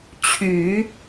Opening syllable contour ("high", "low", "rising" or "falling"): low